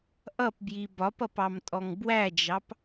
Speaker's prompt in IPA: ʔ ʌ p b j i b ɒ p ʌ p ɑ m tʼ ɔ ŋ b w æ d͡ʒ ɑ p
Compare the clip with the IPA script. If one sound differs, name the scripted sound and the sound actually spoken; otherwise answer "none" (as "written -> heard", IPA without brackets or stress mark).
none